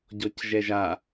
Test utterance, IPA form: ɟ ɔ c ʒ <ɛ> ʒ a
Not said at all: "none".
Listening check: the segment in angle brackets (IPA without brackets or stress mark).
ɛ